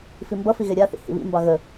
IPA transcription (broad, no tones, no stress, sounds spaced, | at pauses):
f i m b ʌ f i ɣ e ɾʲ a θ ḭ h ḭ β ḭ m b ɑ ɣ ə